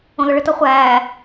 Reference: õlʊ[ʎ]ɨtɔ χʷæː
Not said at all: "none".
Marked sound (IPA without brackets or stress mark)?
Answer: ɭ